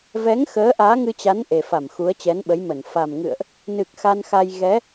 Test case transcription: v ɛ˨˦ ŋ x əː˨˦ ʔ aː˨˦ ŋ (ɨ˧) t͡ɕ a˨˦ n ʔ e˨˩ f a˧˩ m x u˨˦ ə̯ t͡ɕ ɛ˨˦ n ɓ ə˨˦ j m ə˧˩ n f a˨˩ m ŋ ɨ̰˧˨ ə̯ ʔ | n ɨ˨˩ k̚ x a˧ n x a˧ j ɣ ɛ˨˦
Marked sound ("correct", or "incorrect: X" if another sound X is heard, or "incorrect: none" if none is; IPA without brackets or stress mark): correct